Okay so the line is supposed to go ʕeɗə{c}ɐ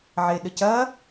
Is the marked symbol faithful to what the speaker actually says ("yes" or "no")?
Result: yes